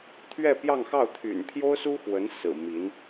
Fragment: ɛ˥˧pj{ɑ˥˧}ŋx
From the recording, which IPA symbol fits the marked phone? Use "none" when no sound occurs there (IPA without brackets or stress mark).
ɑ˥˧